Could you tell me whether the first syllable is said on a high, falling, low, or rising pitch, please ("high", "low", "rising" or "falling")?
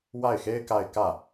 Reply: falling